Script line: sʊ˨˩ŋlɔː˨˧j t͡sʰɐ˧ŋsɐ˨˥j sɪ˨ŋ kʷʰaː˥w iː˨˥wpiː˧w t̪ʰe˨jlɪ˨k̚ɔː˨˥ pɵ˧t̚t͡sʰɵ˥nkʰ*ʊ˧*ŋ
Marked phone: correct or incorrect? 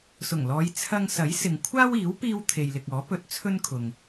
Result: incorrect: ʊ˨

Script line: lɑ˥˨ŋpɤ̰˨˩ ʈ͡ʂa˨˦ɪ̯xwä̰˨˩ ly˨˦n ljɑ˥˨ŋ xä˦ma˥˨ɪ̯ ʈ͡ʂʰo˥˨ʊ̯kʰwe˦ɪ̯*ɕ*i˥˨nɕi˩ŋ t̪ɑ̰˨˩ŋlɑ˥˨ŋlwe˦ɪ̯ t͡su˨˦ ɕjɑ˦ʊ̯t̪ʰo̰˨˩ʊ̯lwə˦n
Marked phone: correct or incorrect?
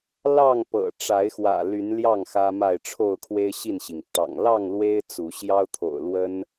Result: correct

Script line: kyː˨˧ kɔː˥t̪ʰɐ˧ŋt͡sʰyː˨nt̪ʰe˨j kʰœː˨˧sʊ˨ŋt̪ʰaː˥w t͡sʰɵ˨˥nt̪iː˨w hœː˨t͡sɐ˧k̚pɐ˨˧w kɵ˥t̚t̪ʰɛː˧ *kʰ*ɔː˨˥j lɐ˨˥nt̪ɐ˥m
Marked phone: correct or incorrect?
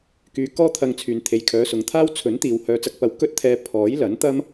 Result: incorrect: pʰ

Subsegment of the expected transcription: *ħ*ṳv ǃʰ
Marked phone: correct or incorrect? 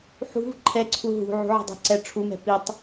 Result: correct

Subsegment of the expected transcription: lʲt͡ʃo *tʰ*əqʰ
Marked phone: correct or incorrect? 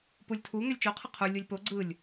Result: incorrect: qʰ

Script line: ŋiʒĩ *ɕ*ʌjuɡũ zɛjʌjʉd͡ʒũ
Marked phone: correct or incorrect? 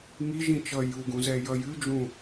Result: incorrect: t͡ʃ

